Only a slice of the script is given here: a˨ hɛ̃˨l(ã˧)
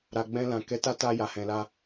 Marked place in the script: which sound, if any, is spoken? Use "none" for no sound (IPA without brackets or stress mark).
a˧